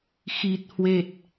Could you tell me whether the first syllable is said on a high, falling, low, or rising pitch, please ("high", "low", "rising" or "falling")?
low